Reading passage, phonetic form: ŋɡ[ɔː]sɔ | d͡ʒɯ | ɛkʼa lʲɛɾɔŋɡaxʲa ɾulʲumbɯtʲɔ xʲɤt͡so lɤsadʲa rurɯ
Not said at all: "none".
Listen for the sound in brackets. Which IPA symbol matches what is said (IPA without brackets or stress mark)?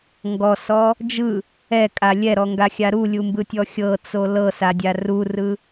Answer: ɔ